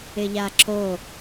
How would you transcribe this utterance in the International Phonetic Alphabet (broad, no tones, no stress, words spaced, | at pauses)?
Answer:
ɪʎaǁo